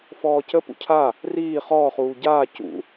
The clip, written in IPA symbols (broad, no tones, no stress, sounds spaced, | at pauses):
f ɔː c ə p ṵ cʰ a | r iː χ ɔː χ uː ɟ aː c ṵ